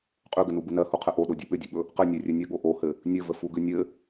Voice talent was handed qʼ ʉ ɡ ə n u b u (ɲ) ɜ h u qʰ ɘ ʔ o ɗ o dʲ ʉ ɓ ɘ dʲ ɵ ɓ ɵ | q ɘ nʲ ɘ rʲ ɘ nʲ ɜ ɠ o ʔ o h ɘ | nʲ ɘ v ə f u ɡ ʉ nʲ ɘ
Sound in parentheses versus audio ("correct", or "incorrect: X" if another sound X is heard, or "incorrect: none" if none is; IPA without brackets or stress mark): incorrect: n